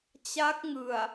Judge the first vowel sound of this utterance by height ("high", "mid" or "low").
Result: low